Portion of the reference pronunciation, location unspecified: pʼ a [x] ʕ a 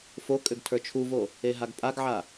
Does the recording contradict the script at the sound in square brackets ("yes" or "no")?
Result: yes